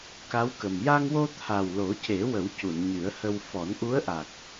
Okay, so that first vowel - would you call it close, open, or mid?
open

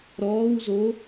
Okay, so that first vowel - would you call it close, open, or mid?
mid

